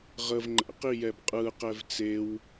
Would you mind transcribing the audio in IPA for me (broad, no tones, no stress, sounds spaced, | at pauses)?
ʁ ə v ŋ͡ǃ ɛ̰ q i j ɛ b qʼ ɯ q ɛ v t͡s e w